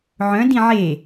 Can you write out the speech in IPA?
ʕœ̃ dĩʕe

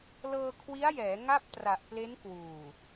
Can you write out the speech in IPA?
lɤː˧kʰwi˦˥a̯jɛː˩˦ ŋa˥˩p̚tra˨˩ʔ ple˦˥nkwuː˨˩

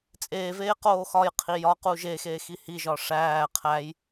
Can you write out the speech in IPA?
t͡sʼeːveː qoːxɒjqʰi jɒqu ʒe xeːxihiʒɒ ʂæː qʰæj

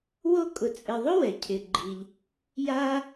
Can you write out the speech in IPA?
wo˦kʼʊ˨t͡sʼɪ˨ðˤʊ˥ wɛ˩cʰɪ˨ɡ͡ǃi˨ʎ | ja˦

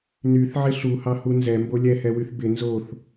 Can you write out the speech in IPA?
nyθʕɪ ɬuhɑhu nzɛmbo lʲɛhɛwyθ bɪ nzoθ

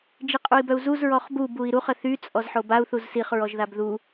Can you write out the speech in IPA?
d͡ʒiqʼui̯bœu̯zuz ɹɔχbub ui̯ɾuχ əθy t͡sʼɔzħobau̯ θuzsiχ ɹɔʒðabðu

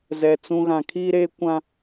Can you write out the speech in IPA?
zɛ˨t͡sũ˦ ɣã˨kʰiː˦ɾeː˦ kʷã˦

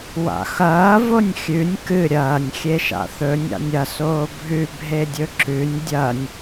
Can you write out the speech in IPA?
wa̰xɐː vonʲxʲʉnʲ kɨ ɾʲɐːnʲ xʲeʃa̰θɵnʲ a̰nʲɐ soːbʱʉ bʱedʲɵǁʉnʲ dʲɐnʲ

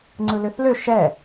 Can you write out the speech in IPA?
ŋ͡ǀɯløθlø ʃɛ

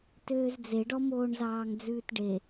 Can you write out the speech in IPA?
tøːzd͡zeɖɔ moːɳzɑːŋd͡zʉːtɖe

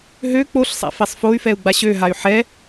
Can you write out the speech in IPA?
ɦø k͡poɬsˤa̰ fɛsˤfoy̯fɛu̯ ɡ͡baɕøɦay̯ ħɛ

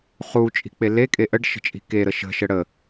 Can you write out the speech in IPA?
χu t͡ʃʼi̤k͡pelekʼe ʔəɖ ʃə̤t͡ʃʼi̤keɾə ʃə̤ʃə ɽə

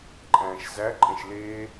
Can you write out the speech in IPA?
ǃʼæ̃ːʃzæǃʼẽʃ leː

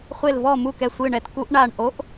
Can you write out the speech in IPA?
χʷe˨˩lvɔ˨˩mu˨˩ kɛ˨˩sʷɨː˨˩ɳɛ˨˩t ku˧˩˧ʔ ɳa˨˩ɳʔo˨˦ʔ

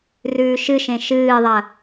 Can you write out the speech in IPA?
rʉːʃɨʃẽ ʃɨːðˤɐ

